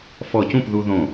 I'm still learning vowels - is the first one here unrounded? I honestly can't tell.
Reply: no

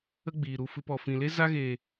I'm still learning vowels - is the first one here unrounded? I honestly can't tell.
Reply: yes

